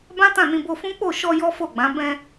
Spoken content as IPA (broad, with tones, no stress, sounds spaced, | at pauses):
b ã˦ t ã˦˨ n ĩ˧ b o˧ f ũ˦ k͡p o˦˨ ʃ ɔ˧ j ɔ˦ f o˦˨ ɡ͡b ã˨˦ b ɛ̃˧